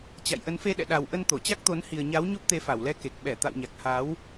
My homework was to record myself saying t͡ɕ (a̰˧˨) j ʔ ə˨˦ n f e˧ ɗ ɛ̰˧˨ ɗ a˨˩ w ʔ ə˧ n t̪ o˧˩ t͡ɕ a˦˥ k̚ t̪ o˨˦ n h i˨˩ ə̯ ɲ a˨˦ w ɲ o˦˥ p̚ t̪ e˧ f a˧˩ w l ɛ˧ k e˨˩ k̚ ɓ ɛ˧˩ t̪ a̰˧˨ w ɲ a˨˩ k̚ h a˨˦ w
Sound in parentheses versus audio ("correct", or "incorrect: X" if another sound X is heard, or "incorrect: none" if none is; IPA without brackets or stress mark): correct